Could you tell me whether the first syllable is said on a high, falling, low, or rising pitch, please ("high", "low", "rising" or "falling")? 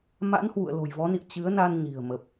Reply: rising